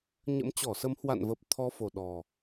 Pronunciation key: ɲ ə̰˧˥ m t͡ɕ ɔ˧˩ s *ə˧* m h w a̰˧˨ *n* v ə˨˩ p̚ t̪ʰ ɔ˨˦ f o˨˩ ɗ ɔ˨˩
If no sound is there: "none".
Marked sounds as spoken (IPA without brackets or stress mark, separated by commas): ə˨˦, n